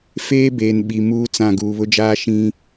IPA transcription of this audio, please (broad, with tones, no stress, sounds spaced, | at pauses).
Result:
f eː˦ b eː˨ n ɓ i˨ m uː˦ t͡s ã˦˨ ɡ uː˨ β ʊ˦ d͡ʒ aː˦ ʃ ĩ˦